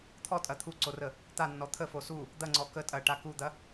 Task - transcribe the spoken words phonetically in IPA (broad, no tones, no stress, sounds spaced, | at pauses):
t̪ʰ ɔ tʼ ɐ t̪ʰ u ǀ o r ə | t̪ a nː ɔ t̪ʰ ə f o s u | d̪ ɐ ŋ͡ǀ ɔ k ə tʼ ɐ ʈ a k u d̪ ɐ